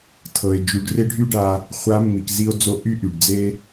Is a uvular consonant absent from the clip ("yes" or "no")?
no